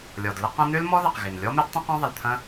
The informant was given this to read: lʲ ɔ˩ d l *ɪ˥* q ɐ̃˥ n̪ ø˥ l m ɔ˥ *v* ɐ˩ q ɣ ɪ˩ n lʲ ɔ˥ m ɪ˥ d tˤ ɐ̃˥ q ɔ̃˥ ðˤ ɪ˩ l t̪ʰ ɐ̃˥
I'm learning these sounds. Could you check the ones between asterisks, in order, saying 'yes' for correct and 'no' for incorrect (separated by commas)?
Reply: no, no